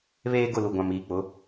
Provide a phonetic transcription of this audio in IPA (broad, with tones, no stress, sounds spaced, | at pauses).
β eː˦ ɡ ʊ˦˨ l u˨ ɡʷ ã˨ m iː˨ k͡p ʊ˨˦